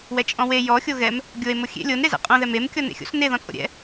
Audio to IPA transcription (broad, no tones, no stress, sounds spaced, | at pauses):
w ɛ t͡ʃʼ ɔ̃ w e j ɔ xʲ o ɣ ɛ m | ɡʲ o e̯ m o xʲ ḛ lʲ o n ɾ e z ɛ̰ qʼ õ ð ɛ m e m kʲ ɔ n ḛ xʲ o̰ s n e ð ɔ̃ t͡sʼ o̰ ɾʲ ɛ̰